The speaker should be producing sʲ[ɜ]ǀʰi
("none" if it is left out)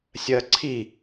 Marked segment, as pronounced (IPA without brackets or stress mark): ɜ